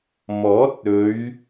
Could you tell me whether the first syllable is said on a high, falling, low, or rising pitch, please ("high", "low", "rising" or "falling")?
rising